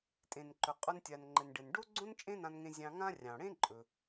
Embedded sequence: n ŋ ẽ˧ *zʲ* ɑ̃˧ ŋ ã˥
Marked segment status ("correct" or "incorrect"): correct